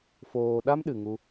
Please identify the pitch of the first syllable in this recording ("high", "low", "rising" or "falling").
low